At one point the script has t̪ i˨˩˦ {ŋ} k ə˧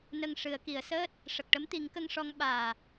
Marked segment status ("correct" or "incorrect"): correct